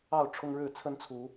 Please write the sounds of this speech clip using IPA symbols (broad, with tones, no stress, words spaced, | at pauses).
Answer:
ɑ˥˨ʊ̯ ʈ͡ʂʰʊ˦ŋɻɻ̩˥˨ t͡sʰə˦nt͡sʰu˨˦